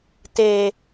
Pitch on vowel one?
low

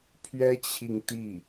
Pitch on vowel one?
high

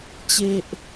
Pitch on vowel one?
high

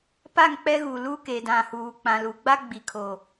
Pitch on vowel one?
falling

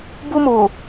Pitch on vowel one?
high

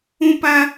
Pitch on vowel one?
high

